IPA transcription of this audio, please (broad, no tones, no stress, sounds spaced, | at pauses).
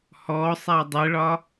h ɔ sˤ a dˤ ɘ ɭ ɒ